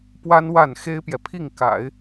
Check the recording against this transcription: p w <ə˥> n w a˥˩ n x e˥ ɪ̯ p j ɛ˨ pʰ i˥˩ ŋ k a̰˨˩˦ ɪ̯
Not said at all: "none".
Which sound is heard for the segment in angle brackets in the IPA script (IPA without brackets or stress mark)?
a˥